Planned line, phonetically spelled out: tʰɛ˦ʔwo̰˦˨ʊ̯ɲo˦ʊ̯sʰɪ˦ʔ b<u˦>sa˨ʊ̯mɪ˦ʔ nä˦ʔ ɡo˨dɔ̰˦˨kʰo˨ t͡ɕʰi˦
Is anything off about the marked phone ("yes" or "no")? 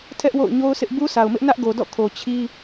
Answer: no